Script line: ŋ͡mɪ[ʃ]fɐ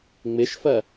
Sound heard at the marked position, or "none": ʃ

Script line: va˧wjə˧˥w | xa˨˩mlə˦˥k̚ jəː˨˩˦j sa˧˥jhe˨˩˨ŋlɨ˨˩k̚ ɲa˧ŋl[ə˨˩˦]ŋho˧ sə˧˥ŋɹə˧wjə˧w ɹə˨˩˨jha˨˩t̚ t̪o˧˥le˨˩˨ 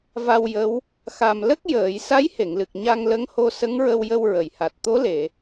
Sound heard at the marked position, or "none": ə˧˥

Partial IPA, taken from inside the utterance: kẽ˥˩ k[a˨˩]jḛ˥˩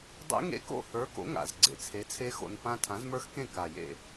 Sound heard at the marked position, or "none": a˨˩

